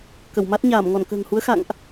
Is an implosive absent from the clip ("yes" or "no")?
yes